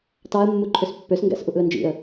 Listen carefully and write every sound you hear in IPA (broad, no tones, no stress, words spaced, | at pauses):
tɑə̯ mːuǃʰøspːøsŋɡæ̰s ʔuʔɯə̯nd͡ʒḭə̯